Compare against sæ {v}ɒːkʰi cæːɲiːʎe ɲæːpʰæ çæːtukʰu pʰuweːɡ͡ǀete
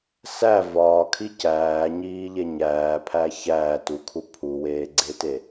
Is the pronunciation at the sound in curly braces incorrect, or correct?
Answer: correct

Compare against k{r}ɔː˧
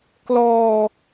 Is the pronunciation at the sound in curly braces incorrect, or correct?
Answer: incorrect: l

